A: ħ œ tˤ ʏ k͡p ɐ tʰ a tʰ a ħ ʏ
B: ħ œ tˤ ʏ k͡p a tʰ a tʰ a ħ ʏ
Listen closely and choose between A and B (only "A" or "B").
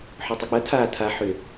A